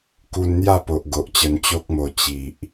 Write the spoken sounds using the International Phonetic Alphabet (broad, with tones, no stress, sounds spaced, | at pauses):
k u˧ n n̪ j a˥˧ p o˨ ʔ ɡ o˨ ʔ t͡ɕ ə˧ n t͡ɕ o˦ k̚ m o˧ t͡ɕ i˨ ʔ